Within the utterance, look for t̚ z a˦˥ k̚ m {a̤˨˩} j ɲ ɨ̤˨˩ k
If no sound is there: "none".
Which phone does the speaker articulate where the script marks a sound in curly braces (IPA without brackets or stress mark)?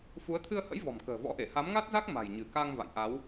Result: a̤˨˩